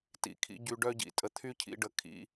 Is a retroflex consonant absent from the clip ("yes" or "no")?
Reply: no